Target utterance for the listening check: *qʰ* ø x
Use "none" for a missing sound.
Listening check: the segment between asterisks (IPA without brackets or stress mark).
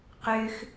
q